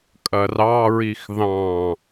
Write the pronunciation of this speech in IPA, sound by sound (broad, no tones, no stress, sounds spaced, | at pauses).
kʼ ɐ r ɑ ɹ i x ð ɑ̃